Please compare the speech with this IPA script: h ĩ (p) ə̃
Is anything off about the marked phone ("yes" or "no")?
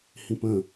no